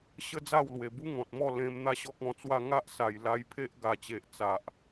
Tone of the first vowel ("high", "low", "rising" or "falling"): high